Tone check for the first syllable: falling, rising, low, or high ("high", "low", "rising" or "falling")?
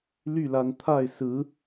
falling